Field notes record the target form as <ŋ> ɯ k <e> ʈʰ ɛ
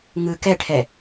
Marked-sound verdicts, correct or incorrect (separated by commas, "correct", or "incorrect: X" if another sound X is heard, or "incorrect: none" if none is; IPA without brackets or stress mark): correct, incorrect: ɛ